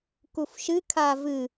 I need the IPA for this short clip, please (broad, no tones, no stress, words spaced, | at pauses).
kufʃɨ kʰavɨ